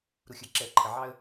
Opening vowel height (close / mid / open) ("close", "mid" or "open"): close